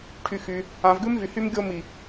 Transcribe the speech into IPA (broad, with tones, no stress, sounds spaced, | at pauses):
ʈʰ y˨ x y˨ | ã˨ v ɡ ʉ˦ m v y˨ h y˦ m ɡʲ o˦ m i˨